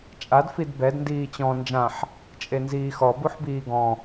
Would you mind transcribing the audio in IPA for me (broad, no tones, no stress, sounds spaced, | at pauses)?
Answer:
t͡ʃʼ a d f i d b ɛ d n d iː t͡ɕ ɔ̃ n d͡ʒ ã ħ | t͡ʃʼ e n z iː x ɔ b u ħ b iː ɡ ɔ̃